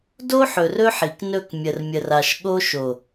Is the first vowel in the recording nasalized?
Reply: no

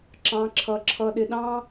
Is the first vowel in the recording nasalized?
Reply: yes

